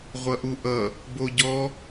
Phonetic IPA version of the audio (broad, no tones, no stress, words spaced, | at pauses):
ʁʷʌʔuʔʌ | boɟɔ